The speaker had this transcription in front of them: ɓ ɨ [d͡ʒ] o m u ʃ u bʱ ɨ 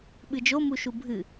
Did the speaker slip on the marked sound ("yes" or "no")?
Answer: no